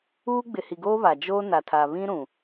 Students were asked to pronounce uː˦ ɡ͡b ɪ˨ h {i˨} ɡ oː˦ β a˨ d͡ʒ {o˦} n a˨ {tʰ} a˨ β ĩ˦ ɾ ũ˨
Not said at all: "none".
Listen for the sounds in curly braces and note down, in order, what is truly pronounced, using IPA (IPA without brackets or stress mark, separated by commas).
i˨, oː˦, tʰ